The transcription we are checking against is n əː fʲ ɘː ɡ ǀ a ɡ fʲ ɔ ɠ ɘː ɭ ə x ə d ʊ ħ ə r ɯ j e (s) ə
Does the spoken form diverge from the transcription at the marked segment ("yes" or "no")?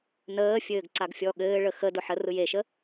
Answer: yes